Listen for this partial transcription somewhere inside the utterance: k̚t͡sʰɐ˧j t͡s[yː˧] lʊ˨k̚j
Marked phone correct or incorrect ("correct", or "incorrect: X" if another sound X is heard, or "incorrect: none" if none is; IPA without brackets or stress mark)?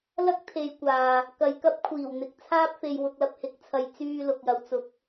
correct